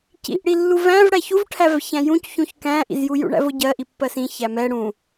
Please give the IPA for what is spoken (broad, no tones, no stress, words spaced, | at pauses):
cḭʔɽilːu væ̃vɽæ çuvʈʰævçæ̃ jũcçũç kæ̃ʔḭzju jṵɳæ̰vʊɟɜ ʔipːɜsĩ çæmɛ ɽũ